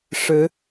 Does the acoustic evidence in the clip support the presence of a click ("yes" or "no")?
no